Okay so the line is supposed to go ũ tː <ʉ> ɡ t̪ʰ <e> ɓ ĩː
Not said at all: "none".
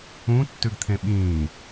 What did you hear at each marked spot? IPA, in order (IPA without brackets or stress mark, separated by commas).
ʉ, ẽ